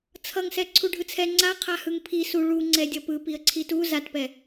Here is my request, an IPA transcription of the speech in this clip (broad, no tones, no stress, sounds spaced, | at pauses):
t͡sʰ ʌ ŋ s ɛ ǀʰ u ɖʱ ɯ t͡sʰ ɛ ŋ͡ǀ a qʰ a h ɯ ŋ pʰ i s u ɭ u ŋ͡ǀ ɛ dʲ ʌ p ɯ p i ə̯ ǀʰ i t u z a t p ɛ